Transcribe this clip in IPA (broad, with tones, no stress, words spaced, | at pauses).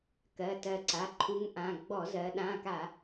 kɜ˩˧˩tɜ˧˩ǀa˩˧˩ ǃʰu˨˥ŋʔã˩˧˩ ɡ͡bɔ˧˩˧zɜ˩˧ ɗã˩˧˩ka˧˩˧